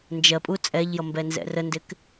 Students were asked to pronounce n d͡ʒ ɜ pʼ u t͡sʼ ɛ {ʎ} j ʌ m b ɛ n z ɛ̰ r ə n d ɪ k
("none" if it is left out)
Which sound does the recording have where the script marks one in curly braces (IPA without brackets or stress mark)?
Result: ʎ